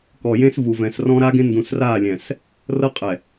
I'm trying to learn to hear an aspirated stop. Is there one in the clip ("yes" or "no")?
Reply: no